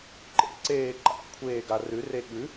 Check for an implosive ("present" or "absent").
present